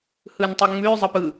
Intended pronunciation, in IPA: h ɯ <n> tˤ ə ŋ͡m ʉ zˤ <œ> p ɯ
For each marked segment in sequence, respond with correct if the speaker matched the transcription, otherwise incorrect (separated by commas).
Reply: correct, incorrect